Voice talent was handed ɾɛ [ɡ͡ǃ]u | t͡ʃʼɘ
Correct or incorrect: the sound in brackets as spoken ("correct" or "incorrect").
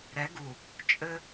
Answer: incorrect